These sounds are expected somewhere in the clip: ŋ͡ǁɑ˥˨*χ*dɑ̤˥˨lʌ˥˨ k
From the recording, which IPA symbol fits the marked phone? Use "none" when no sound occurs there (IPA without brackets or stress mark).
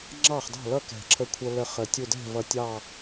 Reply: χ